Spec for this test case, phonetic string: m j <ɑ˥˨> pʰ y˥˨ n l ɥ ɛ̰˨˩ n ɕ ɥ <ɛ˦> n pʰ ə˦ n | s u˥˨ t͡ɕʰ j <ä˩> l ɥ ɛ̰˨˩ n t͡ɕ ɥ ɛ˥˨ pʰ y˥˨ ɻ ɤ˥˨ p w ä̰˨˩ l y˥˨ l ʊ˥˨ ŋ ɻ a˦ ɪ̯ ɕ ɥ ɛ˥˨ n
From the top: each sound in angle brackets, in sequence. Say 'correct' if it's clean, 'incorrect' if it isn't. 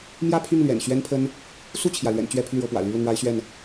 incorrect, correct, correct

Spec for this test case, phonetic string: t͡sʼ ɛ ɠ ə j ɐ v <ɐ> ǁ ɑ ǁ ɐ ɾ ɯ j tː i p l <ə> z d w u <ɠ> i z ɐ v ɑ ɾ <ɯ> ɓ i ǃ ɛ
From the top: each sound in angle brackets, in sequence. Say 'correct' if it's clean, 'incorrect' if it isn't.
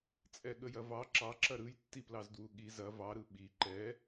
incorrect, incorrect, correct, correct

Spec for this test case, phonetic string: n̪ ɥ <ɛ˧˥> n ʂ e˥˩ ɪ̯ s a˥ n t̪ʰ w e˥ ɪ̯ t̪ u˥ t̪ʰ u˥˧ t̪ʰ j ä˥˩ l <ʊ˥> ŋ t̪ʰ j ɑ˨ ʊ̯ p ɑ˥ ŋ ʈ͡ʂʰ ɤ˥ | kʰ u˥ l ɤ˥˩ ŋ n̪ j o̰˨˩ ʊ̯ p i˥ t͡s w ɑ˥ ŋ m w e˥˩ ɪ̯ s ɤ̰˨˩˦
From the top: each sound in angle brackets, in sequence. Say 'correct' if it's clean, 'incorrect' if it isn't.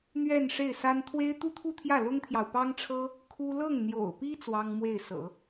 incorrect, correct

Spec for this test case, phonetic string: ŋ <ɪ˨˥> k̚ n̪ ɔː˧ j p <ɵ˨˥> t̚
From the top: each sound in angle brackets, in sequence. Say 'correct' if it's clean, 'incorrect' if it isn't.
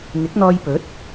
correct, correct

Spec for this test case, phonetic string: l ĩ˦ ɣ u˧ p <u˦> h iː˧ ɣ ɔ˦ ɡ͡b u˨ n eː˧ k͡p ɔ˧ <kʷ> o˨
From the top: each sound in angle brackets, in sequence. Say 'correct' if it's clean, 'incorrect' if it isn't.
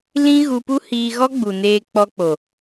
correct, incorrect

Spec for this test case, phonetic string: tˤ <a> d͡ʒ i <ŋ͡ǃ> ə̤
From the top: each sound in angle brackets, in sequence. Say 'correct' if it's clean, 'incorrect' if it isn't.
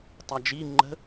correct, correct

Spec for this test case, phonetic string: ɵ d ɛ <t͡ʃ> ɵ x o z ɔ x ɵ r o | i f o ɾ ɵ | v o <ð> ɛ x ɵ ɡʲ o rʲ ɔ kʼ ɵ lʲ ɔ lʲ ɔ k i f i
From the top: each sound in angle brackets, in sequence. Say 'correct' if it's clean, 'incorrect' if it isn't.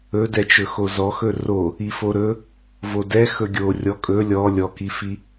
correct, incorrect

